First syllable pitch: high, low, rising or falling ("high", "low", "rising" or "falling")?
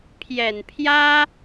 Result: low